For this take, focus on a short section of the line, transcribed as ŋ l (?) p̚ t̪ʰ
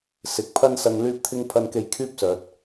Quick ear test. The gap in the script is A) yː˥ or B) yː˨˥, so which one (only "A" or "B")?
A